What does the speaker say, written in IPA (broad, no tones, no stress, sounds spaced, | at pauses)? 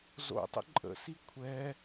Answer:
z o̰ tˤ ə̰ ǃʼ ə̰ s i kʷʰ ɛ